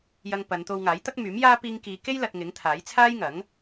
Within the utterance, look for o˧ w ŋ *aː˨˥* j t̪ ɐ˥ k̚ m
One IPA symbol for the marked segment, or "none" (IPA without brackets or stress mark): aː˨˥